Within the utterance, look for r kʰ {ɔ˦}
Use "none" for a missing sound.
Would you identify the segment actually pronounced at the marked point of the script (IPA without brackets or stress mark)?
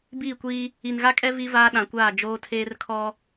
ɔ˦